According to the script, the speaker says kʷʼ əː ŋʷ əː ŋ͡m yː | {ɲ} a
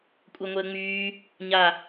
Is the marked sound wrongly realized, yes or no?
no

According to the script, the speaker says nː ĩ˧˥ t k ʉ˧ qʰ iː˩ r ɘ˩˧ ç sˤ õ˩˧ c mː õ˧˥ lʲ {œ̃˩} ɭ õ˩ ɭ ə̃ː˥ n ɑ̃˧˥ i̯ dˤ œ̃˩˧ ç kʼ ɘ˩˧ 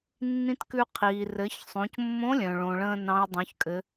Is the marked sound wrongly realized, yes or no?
no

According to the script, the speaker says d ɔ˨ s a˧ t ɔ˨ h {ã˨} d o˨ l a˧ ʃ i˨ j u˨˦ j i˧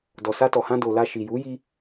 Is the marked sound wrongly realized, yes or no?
yes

